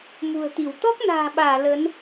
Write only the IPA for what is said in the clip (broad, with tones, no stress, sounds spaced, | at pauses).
m ṳ˨˩ ə̯ t̪ i˧˩ w t̪ ɔ˦˥ k̚ n a̤ː˨˩ ɓ aː˧˩ l ə˨˦ n